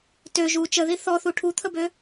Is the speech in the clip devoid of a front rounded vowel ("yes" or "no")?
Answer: no